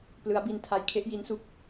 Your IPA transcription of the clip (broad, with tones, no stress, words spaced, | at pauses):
plɯ˦˥a̯bi˧n tʰa˧jkʰe˥˩ʔ ji˦˥nsu˦˥k̚